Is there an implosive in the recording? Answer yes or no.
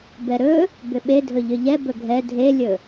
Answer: yes